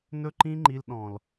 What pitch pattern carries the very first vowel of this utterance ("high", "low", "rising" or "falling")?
high